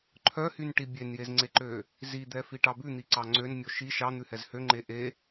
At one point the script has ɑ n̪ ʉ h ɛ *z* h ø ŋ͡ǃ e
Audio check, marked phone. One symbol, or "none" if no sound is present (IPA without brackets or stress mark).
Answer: z